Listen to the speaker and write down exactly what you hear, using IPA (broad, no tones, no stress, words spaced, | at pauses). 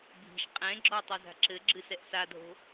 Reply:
bʱi̤ʃ qʼɛ̃ɡ͡ǁɔ tˤɘza̤ǁɘɡ͡ǁɨ sɛʔsadʱo̤